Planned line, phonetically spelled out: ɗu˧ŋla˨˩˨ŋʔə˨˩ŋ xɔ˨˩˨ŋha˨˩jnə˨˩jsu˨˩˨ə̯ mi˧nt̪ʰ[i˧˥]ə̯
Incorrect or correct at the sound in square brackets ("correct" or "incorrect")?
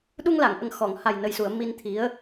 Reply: correct